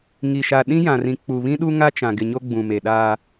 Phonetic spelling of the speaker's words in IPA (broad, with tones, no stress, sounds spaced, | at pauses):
ŋ i˨ ʃ a˨ ɗ ĩ˦ j ã˨ r ĩ˨ k͡p u˨ β ĩ˦ ɗ u˦ ŋ a˦ t͡ʃ ã˨ ɡ ɪ˨ ɲ o˦ ɡ͡b ũ˨ m e˨ ɗ aː˦